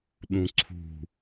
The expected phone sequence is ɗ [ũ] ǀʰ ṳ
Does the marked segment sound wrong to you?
no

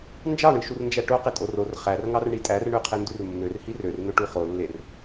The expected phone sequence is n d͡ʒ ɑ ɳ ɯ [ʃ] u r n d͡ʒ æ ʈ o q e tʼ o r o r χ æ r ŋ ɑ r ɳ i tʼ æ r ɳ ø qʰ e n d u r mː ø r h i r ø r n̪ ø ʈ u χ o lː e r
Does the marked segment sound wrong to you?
no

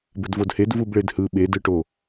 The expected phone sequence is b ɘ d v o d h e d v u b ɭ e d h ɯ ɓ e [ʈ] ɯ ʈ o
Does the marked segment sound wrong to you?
yes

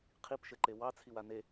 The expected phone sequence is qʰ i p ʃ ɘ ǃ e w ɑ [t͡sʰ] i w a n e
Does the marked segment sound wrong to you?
no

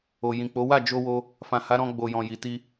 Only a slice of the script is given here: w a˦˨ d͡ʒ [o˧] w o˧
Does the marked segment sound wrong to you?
no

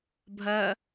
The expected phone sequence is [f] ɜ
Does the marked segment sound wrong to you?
yes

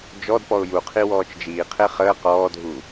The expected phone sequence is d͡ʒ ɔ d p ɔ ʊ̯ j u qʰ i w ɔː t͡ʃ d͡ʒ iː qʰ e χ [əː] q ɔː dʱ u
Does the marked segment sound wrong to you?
no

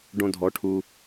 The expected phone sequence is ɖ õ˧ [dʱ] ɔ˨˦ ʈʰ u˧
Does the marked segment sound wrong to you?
no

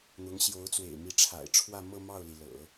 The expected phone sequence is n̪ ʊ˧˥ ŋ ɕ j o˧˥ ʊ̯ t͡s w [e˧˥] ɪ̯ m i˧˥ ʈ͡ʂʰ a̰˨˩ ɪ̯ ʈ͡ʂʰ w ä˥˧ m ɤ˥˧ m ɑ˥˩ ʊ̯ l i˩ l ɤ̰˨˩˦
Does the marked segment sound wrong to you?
yes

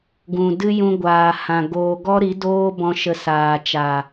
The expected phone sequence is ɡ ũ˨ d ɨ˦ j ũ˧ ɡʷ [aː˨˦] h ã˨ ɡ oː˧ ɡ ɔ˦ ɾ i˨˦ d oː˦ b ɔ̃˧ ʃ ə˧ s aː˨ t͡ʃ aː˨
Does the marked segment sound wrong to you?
yes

